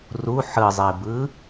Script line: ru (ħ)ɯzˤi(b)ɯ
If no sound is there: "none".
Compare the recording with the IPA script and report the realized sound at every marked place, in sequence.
ħ, b

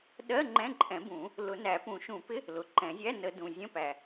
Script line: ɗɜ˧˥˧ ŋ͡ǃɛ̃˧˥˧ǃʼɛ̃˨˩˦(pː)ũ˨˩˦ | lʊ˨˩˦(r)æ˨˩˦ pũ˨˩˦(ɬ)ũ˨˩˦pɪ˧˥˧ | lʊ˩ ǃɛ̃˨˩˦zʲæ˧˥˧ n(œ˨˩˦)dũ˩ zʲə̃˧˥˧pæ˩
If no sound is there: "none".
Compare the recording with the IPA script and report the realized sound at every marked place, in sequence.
b, n, ʃ, ə˨˩˦

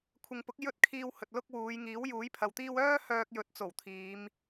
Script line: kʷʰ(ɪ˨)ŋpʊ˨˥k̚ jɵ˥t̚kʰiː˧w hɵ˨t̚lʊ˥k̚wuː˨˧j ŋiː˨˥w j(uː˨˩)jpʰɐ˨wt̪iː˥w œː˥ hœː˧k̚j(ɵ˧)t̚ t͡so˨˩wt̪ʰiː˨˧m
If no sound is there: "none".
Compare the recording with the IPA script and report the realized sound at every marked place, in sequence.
ɪ˨, uː˨˥, ɵ˨˥

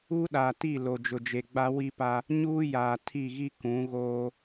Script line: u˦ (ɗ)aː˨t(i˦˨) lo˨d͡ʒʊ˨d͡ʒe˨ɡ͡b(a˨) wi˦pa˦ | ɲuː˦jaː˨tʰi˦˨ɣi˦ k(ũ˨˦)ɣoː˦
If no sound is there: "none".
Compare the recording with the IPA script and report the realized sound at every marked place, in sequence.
ɗ, i˦˨, a˦, ũ˨˦

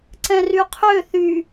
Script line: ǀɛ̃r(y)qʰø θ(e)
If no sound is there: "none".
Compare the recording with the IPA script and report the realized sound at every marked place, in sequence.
y, y

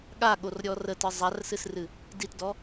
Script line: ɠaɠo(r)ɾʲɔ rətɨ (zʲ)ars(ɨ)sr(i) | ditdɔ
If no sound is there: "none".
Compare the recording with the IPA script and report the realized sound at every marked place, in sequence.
r, zˤ, ɨ, ɨ

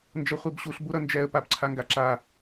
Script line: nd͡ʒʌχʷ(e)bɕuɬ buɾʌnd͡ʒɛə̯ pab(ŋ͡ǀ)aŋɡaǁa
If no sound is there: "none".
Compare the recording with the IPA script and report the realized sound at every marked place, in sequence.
e, ǀʰ

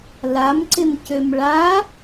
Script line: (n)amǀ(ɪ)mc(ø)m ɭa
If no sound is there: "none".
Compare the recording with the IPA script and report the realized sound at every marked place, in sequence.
l, ɪ, ø

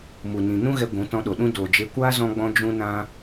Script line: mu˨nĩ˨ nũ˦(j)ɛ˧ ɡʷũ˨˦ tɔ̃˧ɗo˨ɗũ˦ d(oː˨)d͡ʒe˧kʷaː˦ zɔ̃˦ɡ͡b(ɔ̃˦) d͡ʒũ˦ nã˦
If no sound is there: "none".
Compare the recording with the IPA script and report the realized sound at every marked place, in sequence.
ɣ, oː˨, ɔ̃˦

